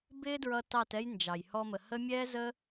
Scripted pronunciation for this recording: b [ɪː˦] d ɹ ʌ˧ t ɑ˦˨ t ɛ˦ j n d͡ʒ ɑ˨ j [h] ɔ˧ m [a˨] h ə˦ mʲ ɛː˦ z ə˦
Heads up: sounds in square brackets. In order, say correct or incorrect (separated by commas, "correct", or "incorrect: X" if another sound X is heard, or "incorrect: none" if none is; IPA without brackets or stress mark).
correct, correct, incorrect: ə˨